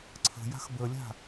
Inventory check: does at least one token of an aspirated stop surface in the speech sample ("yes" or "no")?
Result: yes